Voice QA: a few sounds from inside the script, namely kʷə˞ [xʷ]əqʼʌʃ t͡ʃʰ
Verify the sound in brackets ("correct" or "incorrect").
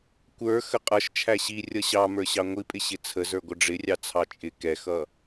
incorrect